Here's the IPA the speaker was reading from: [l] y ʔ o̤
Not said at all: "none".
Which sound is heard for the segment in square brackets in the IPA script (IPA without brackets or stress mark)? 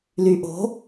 l